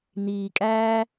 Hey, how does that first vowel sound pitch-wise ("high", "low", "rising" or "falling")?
low